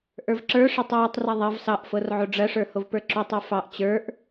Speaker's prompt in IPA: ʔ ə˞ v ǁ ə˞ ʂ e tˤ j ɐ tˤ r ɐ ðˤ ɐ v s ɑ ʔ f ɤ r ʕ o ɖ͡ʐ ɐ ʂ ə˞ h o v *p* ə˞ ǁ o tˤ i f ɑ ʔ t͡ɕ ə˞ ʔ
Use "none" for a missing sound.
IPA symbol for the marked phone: p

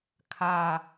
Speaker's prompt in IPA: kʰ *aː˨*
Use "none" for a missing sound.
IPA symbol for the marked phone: aː˦˨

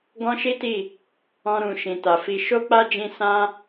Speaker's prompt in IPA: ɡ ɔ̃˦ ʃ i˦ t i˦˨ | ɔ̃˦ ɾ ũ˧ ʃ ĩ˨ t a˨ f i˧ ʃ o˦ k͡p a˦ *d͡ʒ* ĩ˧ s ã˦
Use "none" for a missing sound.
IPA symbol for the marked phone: d͡ʒ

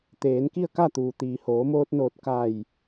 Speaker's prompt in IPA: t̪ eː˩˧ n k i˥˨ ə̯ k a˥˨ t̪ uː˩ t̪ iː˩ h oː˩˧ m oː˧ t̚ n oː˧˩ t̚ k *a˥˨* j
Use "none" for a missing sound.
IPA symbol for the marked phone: a˧˩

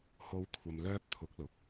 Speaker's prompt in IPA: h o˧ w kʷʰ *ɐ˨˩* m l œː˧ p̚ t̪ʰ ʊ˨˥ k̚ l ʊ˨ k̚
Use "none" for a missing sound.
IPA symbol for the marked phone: ɐ˨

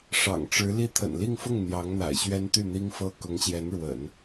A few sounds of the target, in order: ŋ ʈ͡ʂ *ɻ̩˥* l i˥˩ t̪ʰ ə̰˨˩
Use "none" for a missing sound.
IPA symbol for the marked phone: ɻ̩˧˥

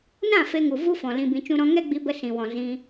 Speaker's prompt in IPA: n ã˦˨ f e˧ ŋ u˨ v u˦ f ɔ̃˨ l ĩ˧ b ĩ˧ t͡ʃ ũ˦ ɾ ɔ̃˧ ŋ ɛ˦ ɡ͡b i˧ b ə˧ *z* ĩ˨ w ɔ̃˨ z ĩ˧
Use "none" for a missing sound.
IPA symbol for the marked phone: s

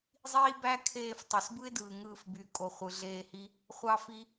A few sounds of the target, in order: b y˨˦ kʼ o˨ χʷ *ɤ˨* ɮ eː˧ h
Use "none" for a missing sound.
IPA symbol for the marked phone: ɯ˨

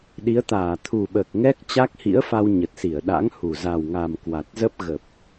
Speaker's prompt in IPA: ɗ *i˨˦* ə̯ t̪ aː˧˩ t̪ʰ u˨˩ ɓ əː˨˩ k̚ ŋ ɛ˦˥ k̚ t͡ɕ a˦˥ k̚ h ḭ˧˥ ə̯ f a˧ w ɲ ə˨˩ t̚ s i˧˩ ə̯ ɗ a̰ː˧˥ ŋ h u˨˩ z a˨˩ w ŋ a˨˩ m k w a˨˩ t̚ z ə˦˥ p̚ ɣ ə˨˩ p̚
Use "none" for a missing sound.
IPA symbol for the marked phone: i˨˦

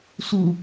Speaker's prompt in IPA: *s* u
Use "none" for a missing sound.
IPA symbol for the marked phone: s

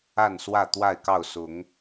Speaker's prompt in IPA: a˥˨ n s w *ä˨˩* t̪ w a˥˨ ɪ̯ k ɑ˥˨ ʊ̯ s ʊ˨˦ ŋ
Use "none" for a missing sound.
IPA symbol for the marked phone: ä˥˨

